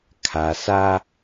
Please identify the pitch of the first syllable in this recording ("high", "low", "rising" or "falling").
low